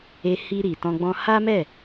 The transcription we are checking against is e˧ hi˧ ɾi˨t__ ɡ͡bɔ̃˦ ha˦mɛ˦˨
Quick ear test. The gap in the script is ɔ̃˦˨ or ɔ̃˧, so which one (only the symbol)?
ɔ̃˧